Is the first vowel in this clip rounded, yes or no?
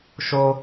yes